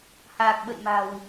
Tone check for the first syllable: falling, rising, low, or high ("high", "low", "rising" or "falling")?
low